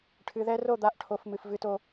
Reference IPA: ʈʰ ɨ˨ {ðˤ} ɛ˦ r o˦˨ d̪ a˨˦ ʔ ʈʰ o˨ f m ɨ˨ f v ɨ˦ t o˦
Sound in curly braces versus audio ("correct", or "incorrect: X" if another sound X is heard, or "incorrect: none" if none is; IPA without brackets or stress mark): incorrect: ð